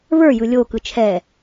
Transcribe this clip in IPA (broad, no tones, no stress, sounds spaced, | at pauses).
β ə˞ j ɯ lʲ o k ɯ t͡ʃʰ ɛ